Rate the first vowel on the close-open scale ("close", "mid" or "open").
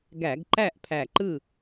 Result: open